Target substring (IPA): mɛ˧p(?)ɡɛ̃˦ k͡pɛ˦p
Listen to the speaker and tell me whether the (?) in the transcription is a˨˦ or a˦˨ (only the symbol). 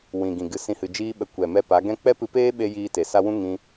a˨˦